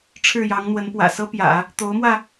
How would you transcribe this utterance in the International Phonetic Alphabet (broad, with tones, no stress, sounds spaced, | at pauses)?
ʈ͡ʂʰ ɻ̩˥˩ j ɑ˧˥ ŋ n̪ w ə˧˥ n p w ä̰˨˩ s ɤ˥ p j ä̰˨˩˦ | t̪ o˧˥ ʊ̯ m w ä˧